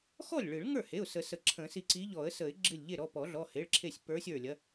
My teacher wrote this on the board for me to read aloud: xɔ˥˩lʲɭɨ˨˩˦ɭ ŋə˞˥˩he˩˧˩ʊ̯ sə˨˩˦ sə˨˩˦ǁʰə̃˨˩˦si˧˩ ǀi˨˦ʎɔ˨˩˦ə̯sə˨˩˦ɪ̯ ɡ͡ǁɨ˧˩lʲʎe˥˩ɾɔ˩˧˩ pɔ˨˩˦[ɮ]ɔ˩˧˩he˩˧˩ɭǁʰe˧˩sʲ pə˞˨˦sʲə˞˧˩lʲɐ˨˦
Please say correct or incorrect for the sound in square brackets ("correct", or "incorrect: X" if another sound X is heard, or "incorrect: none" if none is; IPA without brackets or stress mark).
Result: correct